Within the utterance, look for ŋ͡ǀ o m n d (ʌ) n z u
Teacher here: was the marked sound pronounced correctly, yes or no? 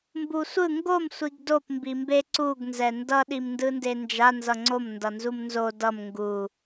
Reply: yes